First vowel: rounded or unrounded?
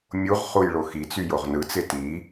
rounded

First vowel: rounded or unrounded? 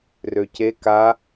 rounded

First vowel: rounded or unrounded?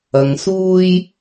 unrounded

